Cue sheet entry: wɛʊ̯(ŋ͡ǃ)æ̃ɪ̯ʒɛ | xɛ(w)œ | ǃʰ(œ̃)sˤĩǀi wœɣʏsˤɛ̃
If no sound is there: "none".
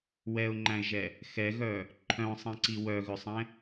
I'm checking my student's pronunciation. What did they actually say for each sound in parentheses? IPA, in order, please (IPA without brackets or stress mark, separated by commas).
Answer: ŋ͡ǃ, ɣ, œ̃